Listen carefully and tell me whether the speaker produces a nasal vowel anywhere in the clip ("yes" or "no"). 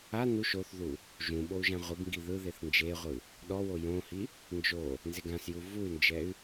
yes